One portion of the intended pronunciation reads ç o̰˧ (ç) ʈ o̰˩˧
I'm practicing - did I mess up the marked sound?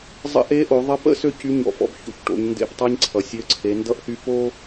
no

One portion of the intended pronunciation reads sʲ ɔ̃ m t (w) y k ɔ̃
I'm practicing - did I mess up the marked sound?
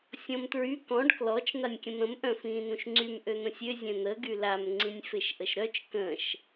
yes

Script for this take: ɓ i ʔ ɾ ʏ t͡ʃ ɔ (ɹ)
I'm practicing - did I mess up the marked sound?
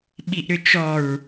no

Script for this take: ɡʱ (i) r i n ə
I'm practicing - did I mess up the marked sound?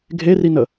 yes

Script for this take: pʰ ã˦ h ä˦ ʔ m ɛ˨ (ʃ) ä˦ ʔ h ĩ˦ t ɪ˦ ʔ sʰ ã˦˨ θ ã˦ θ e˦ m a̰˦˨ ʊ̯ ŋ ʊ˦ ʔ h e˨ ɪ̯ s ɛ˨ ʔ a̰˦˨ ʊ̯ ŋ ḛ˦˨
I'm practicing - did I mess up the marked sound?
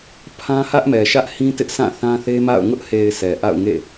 no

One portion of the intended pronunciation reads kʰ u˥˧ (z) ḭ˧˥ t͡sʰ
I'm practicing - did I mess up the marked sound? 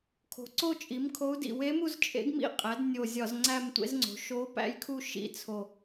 yes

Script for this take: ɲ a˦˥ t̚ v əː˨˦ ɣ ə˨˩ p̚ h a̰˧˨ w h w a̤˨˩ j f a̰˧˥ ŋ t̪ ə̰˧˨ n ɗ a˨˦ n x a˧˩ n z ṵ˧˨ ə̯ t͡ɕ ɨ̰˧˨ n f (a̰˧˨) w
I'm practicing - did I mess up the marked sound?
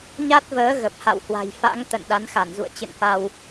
yes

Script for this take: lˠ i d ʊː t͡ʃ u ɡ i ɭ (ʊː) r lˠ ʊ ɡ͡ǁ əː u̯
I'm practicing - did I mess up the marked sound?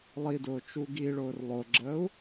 no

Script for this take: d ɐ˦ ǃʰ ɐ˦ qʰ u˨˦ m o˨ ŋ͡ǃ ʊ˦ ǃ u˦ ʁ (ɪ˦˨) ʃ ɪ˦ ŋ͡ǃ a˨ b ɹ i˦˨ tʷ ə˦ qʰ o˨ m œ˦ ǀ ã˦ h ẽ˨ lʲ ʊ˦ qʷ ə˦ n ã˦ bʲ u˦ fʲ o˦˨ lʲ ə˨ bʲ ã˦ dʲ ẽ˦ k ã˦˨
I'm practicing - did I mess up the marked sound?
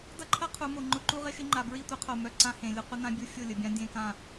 yes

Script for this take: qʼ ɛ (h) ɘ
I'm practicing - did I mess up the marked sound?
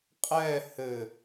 no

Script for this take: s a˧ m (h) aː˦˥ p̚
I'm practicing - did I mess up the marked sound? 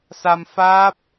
yes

